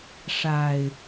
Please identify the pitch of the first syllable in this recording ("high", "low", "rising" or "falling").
low